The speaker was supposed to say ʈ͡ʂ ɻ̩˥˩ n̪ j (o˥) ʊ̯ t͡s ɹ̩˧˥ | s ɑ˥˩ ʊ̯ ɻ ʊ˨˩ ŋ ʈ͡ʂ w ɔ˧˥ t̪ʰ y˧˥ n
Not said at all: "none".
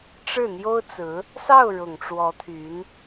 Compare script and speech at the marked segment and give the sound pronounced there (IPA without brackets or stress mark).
o˥